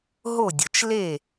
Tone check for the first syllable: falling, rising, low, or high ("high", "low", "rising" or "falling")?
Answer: falling